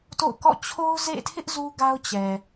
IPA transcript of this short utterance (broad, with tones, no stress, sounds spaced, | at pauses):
t o̰˦˨ ʊ̯ k ɔ̰˦˨ t͡ɕʰ o˦ ʊ̯ z ḛ˦˨ tʰ ɪ˦ ʔ z u˦ ɡ a˦ ʊ̯ t͡ɕ ɛ˨